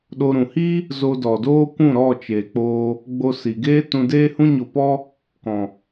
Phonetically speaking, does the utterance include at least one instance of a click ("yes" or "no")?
no